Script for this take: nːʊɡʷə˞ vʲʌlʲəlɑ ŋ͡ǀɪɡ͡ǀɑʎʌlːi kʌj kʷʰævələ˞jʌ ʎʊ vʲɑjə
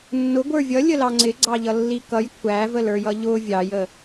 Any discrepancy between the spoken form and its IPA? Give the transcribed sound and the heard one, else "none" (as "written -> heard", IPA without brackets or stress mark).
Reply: none